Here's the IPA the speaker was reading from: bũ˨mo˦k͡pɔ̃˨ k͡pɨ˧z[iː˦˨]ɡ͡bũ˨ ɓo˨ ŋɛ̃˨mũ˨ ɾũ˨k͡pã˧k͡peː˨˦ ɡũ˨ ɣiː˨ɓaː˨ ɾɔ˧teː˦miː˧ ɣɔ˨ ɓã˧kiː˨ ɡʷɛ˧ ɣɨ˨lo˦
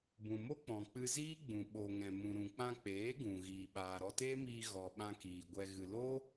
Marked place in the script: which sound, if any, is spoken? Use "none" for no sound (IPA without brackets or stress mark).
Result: iː˦